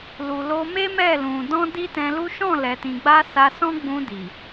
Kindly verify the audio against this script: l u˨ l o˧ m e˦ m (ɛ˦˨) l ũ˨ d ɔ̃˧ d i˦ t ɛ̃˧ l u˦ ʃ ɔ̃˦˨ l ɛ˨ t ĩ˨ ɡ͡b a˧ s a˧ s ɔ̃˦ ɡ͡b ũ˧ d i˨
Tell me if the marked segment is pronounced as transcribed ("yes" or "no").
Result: yes